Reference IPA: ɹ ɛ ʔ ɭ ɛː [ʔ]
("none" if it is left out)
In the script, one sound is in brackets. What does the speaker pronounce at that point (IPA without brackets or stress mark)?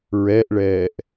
ʔ